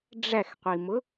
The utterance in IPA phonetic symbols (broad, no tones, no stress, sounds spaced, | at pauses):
ɖ͡ʐ æ x qʷ i m ʊ